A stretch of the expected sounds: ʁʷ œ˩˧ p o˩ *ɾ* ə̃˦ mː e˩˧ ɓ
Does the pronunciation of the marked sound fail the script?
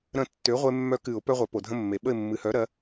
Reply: yes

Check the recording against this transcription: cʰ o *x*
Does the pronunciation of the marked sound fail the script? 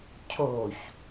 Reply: yes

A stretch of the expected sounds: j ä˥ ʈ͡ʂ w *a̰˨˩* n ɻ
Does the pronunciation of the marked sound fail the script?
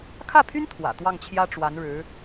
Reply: yes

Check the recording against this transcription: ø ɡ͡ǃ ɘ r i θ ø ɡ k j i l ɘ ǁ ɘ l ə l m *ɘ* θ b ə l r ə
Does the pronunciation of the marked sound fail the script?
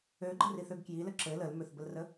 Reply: yes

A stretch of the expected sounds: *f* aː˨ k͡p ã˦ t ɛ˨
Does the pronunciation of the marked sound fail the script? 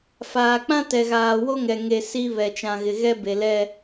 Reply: no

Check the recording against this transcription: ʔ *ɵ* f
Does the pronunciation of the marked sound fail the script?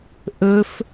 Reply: no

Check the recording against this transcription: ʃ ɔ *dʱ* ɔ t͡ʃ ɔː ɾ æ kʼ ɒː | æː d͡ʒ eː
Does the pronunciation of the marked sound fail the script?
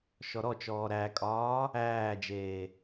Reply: yes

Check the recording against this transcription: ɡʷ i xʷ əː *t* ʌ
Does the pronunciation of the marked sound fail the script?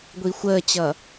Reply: yes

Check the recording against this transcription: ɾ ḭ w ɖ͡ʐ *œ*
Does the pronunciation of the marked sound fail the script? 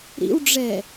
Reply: yes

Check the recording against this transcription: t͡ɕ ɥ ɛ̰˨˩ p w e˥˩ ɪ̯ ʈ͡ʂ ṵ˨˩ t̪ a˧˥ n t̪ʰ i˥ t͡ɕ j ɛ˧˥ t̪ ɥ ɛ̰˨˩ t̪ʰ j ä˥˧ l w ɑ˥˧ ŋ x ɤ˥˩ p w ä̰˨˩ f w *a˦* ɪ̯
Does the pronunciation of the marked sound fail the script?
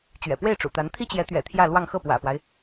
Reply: no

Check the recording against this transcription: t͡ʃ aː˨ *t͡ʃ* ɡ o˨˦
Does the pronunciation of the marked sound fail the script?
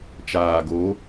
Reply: yes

